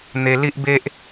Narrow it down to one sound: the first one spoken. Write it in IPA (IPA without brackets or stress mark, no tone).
n̪